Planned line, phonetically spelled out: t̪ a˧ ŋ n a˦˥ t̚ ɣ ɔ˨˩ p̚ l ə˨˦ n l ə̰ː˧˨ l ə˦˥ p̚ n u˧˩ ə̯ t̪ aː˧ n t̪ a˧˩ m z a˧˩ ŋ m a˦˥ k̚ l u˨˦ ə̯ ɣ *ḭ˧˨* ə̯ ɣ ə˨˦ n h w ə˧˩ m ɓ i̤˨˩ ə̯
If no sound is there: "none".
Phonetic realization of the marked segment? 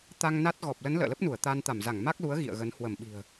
ḭ˧˨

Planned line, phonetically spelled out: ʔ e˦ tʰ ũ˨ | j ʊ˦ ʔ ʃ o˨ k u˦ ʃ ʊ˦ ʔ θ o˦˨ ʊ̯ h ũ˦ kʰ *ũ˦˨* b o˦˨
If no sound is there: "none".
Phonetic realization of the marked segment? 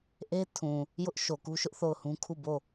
u˦˨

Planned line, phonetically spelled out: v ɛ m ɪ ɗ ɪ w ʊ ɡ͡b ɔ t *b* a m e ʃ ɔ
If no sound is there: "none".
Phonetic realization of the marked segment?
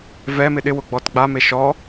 ɡ͡b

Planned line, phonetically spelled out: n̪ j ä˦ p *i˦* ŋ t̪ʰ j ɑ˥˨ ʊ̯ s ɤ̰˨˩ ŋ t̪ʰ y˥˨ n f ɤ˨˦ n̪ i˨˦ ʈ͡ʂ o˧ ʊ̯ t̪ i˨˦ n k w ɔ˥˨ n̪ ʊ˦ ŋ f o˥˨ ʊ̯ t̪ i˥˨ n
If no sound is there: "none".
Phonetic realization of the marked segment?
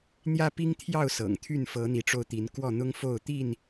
i˦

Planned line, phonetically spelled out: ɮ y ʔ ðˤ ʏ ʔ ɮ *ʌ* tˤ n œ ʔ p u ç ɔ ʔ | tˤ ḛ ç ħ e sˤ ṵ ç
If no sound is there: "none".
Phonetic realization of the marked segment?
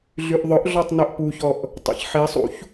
ɔ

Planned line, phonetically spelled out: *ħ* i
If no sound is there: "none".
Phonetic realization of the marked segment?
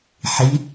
ħ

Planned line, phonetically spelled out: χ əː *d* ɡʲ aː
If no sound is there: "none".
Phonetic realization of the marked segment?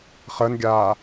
n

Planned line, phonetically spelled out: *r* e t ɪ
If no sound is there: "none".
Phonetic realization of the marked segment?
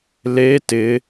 l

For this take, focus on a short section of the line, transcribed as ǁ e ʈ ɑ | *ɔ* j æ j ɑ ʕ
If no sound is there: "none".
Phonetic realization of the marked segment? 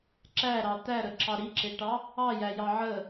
ɑ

